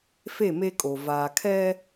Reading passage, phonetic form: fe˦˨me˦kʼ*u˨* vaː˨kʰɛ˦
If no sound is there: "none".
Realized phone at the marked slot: o˨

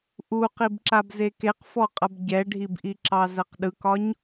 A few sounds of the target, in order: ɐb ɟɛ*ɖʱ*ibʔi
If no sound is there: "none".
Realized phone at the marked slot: ɖʱ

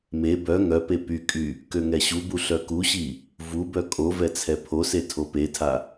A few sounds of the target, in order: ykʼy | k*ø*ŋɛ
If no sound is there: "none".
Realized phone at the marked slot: ø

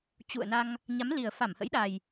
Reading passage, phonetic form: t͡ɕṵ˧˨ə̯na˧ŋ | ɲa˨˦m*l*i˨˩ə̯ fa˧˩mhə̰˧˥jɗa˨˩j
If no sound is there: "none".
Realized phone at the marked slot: l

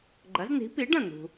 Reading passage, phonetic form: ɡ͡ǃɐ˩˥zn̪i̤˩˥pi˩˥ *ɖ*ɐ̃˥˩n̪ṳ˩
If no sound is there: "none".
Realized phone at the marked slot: ɖ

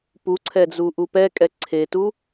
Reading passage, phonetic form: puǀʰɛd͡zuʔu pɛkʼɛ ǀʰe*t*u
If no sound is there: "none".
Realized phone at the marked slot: t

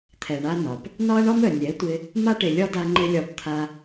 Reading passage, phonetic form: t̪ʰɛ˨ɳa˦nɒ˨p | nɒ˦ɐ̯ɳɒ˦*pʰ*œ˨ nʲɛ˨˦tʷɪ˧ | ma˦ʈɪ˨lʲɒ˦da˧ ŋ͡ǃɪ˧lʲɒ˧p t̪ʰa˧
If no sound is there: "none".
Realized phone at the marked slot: m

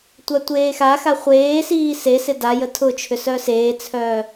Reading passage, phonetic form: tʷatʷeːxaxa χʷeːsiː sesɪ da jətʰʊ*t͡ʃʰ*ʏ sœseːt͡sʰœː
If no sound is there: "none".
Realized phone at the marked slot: t͡ʃʰ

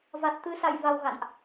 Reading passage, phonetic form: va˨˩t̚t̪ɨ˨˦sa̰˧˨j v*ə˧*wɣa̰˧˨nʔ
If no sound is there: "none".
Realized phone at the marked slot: a˧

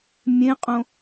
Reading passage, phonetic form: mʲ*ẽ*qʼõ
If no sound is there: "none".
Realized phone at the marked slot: ẽ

